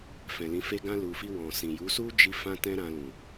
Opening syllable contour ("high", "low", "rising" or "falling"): low